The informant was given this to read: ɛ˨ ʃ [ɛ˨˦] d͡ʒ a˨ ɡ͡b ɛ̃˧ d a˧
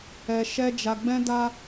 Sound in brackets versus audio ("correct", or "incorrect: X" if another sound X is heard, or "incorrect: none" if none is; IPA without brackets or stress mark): incorrect: ɛ˧